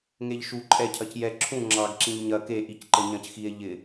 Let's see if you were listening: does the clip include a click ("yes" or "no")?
yes